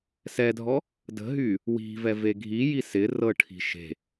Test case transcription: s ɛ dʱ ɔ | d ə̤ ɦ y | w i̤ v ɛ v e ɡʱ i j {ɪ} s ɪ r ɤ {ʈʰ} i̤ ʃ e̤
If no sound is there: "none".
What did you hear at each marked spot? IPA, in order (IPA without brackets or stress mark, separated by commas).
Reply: i, ʈʰ